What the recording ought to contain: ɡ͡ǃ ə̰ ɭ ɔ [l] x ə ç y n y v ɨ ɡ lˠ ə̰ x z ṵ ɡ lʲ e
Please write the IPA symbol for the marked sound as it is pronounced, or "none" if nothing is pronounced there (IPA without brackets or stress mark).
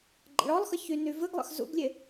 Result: lˠ